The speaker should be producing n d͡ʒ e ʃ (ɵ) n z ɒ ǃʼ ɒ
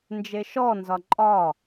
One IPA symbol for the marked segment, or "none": ɔ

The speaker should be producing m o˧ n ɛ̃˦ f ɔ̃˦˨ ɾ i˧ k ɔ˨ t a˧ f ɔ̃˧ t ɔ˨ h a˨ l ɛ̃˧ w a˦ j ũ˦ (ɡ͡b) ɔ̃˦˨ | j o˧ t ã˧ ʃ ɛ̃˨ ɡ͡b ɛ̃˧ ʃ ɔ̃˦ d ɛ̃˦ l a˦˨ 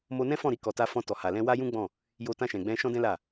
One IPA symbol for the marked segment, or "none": ɡ͡b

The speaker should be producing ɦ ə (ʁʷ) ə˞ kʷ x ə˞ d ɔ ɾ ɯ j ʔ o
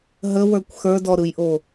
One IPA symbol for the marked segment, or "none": w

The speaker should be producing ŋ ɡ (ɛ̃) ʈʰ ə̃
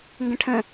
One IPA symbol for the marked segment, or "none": ə̃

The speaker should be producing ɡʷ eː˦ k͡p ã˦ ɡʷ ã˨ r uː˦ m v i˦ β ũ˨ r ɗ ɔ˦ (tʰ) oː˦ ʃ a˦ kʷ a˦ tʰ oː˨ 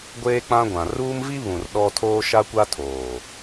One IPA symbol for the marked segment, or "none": tʰ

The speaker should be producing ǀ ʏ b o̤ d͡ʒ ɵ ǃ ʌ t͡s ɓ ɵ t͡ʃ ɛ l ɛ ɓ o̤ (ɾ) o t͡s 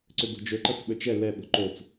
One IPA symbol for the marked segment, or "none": ǃ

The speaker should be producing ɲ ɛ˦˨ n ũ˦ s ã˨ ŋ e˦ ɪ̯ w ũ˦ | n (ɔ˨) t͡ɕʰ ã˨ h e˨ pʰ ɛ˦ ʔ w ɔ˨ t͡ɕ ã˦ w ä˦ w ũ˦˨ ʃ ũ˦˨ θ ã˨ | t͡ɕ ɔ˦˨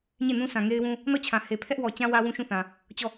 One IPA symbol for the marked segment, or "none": ɔ˦˨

